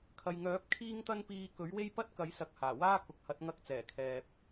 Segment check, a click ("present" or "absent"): absent